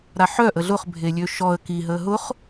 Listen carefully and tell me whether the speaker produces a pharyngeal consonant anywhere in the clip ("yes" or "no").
yes